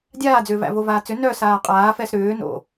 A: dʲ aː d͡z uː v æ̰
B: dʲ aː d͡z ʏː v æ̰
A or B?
B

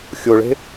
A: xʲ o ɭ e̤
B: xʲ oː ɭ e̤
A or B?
A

